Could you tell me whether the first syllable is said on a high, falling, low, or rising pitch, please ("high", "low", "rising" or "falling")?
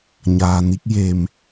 low